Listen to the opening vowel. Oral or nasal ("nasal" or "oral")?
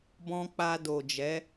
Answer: nasal